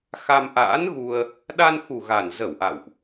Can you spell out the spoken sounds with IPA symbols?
x a˧ m ʔ a̰ː˧˥ n ɣ u˧ ə̯ | ɗ a˧ n x u˨˩ ɣ a˨˩ n z ə˧˩ w ʔ a̰˧˨ w ʔ

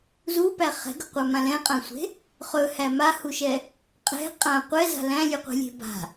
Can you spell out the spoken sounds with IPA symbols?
z u p æ χ ɛ̤ ɡ ɵ qʷ a m ã l ɛ̃ qʼ ã sʷ e̤ | χ ɵ h æ m a h u ʃ ɛ | qʼ ɛ̤ qʼ ã qʷ ɛ z a̤ l æ̃ lʲ ʉ qʷ e̤ lʲ e̤ b a̤

